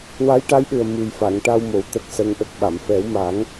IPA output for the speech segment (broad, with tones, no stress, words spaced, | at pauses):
wa˧˥jʈa˧˥jɗɨ˨˩ə̯ mɨ˨˩jfa˨˩˨ŋ ʈa˧wmo˨˩w t̪ə˦˥k̚sə˧˥ŋʔə˦˥k̚ɓa˨˩˨m fɛ˨˩˦wmaː˨˩˦ŋ